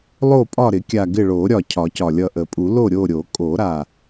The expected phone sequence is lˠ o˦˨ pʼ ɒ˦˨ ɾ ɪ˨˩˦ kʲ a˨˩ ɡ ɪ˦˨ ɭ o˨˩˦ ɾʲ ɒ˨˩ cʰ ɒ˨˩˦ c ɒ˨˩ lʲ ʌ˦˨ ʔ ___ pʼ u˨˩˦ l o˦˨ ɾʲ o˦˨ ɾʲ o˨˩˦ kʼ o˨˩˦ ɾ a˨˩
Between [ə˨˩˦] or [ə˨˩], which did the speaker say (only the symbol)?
ə˨˩˦